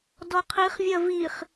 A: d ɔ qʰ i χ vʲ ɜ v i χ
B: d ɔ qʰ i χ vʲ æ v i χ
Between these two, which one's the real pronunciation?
A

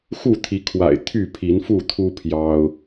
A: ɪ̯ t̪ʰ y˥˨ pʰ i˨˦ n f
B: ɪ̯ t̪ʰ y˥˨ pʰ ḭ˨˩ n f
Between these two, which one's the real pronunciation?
A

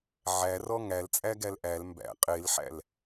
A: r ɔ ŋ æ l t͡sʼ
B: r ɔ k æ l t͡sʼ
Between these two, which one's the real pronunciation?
A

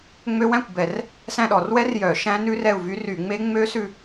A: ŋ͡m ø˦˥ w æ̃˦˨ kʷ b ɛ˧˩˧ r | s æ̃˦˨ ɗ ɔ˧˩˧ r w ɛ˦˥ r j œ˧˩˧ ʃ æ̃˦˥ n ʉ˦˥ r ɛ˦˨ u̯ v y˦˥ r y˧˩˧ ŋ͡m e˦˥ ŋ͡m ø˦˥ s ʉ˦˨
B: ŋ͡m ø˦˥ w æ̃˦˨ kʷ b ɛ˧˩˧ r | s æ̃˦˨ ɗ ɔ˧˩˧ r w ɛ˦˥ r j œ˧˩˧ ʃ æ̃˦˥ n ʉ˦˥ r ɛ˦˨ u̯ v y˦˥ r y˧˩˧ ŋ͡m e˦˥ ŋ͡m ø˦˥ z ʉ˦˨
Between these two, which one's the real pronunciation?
A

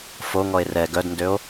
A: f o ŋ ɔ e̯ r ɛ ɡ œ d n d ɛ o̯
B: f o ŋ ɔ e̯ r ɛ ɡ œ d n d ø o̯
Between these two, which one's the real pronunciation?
B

